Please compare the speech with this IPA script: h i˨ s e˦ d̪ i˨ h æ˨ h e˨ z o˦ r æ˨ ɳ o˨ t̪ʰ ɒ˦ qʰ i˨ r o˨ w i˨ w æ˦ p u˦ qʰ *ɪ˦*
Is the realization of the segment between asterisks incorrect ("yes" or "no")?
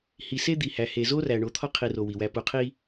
yes